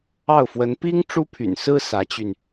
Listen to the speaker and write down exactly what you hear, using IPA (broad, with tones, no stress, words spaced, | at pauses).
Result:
ɑ˥˩ʊ̯fwə˧˥n pi˥ŋ ʈ͡ʂu˥pʰy̰˨˩nsɹ̩˥ sä˧˥t͡ɕy˧n